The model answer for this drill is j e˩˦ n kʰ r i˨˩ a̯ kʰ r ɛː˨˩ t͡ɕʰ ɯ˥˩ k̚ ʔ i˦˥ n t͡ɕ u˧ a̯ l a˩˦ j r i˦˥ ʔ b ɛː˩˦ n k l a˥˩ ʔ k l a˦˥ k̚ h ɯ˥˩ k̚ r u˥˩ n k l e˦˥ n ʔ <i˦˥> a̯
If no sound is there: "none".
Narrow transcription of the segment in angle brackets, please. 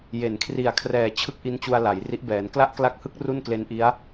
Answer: i˦˥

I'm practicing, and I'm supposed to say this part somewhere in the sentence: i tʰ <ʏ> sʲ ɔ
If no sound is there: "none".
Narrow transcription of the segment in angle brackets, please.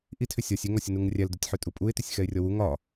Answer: ʏ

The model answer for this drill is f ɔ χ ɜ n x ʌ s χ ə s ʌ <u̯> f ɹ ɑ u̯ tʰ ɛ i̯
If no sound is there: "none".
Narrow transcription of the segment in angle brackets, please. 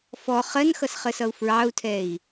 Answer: u̯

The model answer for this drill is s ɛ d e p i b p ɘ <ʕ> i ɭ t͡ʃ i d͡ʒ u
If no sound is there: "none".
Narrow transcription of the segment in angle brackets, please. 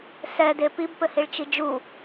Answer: h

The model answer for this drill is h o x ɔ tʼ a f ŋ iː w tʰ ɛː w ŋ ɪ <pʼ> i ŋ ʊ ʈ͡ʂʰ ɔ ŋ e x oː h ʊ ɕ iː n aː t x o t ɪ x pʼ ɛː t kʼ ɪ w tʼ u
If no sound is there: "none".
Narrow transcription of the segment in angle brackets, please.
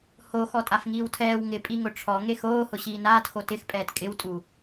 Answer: pʼ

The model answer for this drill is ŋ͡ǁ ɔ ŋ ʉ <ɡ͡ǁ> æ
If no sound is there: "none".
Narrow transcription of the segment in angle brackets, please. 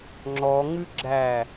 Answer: ɡ͡ǁ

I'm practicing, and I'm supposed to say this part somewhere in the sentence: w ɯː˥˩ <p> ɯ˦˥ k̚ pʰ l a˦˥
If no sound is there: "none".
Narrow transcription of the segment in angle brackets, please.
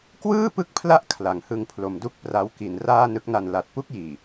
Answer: p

